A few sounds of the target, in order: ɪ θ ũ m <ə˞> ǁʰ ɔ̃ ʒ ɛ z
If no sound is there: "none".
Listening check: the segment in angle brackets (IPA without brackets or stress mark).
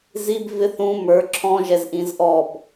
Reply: ə˞